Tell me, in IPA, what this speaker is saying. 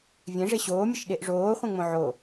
vʲ ẽ ʐ e ɕ oː mʲ ə ʃ ɗ e ʔ ʐ oː χʷ ẽ ŋ͡m õ ʕ o

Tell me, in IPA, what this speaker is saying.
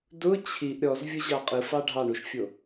d ʊ t͡ɕʰ i ʔ ɾʲ ɔ z vʲ ʊ ʑ ɑ qʼ ɯ f ɑ ɖʱ ɑ ɳ u ʃ fʲ o

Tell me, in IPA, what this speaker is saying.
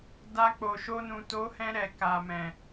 d a˧ k͡p o˨ ʃ o˧ n ũ˨ t o˨˦ h ɛ̃˧ ɾ ɛ˨ k a˨ m ɛ̃˨

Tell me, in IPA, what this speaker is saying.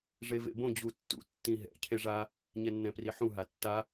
ʐ e v ḛ b õ d͡ʑ u tː ṵ tː ĩ ɦ ɛ̰ cʰ e ʐ a | ɲ ɛ nː ɛ̃ p r i ħ ũ ɦ a tː a

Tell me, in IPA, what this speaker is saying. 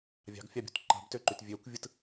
vʲ ɑ̤ ɡ fʲ ɑ bʲ ṳ t ǃ ɑ̤ b t ø ǃ y t vʲ ø kʷ vʲ ɯ t

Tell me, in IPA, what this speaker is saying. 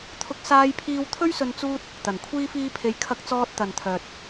t̪ʰ ʊ˥ k̚ s aː˥ j pʰ iː˥ w t̪ʰ ɵ˥ ɥ s ɵ˧ n t͡s uː˥ t̚ | t̪ ɐ˨˩ n kʷʰ iː˥ f iː˥ pʰ e˧ j kʰ ɐ˧ k̚ t͡s ɔː˧ t̚ t̪ ɐ˨ n t̪ʰ œː˨ t̚

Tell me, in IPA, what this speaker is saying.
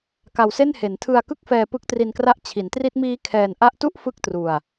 k a˧ w s e˥˩ n h e˩˦ n tʰ ɯ˧ a̯ k ɯ˥˩ k̚ f ɛː˧ p ɯ˦˥ k̚ t r i˧ n k r a˦˥ ʔ t͡ɕʰ i˩˦ n t r i˦˥ t̚ m iː˦˥ kʰ ɛː˧ n ʔ a˦˥ ʔ t u˥˩ ʔ f ɯ˥˩ k̚ t r u˧ a̯

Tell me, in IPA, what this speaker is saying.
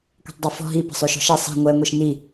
kʷ ɛ̤ tˤ dˤ i f ɔ̤ ɦ i p ə̤ sˤ ø ʃ ɔ̤ ʃ ɛ sˤ i̤ ŋʷ ɛ ŋʷ i ʃ n i

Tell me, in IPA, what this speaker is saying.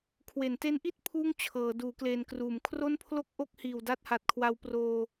kʰ w e˩˦ n t e˦˥ n ʔ i˥˩ t̚ pʰ uː˥˩ ŋ t͡ɕʰ ɤː˩˦ d uː˩˦ k l eː˨˩ n k r uː˩˦ m kʰ r o˥˩ n pʰ l o˥˩ k̚ ʔ o˥˩ k̚ h iː˨˩ w d a˦˥ t̚ h a˨˩ t̚ kʰ w a˧ w p r oː˧

